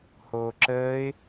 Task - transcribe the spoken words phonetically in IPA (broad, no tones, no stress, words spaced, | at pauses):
hoːǁəːɪ̯